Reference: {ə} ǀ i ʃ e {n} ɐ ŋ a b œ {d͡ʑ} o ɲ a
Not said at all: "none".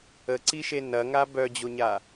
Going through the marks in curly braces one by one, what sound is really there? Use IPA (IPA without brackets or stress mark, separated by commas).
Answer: ə, n, d͡ʑ